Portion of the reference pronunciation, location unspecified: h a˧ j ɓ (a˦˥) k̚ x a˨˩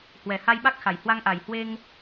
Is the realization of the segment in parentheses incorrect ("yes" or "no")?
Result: no